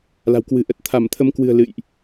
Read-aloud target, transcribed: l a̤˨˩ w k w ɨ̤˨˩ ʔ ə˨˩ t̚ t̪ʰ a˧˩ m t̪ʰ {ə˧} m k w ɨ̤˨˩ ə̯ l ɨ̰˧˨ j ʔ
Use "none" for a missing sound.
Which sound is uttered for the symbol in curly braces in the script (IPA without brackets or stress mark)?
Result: ə˨˦